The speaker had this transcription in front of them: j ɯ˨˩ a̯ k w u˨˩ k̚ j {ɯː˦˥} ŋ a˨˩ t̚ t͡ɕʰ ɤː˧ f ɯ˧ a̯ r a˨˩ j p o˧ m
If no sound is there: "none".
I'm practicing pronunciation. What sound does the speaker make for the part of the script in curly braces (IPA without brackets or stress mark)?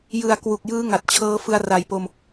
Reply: ɯː˦˥